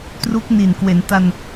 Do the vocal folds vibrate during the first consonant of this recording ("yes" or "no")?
no